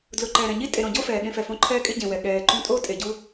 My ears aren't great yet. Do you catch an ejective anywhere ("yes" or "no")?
yes